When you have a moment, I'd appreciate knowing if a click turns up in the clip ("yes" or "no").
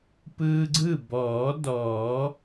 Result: yes